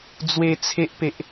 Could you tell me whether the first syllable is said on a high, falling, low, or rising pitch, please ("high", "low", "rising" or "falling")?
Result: high